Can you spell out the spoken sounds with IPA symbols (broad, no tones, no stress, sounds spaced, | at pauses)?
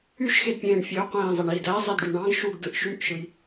y ʃ x e d pʲ ẽː ɳ fʲ ø qʷ ẽː zˤ e ɳ i d æ zˤ e d ɖ y ɳ ɑ̃ ɡ ʃ u ɡ d ɯ ʔ ʃ y ʔ ʃ ɯ j